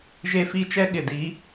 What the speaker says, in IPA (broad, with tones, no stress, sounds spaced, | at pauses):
ʒ e˦ f i˦ t͡ʃ ɛ˦ ɠ ɪ˨ d i˨˦